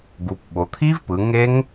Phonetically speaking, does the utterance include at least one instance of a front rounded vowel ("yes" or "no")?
no